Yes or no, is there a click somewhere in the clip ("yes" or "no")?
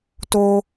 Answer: no